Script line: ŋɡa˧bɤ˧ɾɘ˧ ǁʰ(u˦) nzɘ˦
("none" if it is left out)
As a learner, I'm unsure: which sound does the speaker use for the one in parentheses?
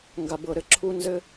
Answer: u˦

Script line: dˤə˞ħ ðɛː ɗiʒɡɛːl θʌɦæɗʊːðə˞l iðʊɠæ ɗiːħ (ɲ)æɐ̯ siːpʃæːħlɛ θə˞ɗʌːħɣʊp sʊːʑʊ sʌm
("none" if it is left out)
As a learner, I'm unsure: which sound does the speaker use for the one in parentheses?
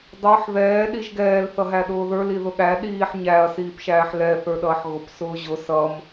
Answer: ɲ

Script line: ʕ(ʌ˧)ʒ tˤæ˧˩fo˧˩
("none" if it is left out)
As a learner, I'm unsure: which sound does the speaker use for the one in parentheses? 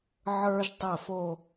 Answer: ə˞˧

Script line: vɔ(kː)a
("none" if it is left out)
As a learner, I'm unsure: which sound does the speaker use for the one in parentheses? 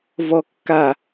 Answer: kː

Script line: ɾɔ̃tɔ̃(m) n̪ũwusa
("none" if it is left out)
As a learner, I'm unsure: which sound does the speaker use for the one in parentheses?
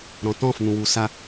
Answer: f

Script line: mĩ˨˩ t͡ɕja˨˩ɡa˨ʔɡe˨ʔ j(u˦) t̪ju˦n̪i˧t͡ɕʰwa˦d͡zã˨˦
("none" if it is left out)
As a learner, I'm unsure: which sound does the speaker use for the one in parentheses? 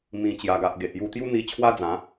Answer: u˧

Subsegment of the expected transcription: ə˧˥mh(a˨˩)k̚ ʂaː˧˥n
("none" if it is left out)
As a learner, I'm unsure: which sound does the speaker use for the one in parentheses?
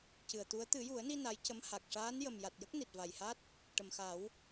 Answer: a˨˩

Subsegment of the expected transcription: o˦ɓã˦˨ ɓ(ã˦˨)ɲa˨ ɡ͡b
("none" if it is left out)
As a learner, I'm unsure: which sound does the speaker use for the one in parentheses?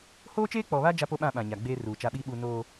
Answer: ã˨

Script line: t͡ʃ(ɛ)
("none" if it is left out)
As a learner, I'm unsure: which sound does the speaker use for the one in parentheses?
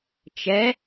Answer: ɛ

